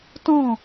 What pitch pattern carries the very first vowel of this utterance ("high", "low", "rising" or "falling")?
falling